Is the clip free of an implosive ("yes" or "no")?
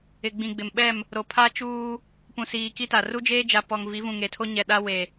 no